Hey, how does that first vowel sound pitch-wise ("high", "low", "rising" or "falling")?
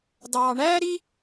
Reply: high